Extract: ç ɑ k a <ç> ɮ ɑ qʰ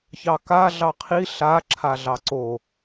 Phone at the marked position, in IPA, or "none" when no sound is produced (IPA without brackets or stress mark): none